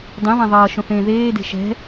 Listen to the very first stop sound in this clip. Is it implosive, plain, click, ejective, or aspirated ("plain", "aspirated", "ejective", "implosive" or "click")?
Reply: plain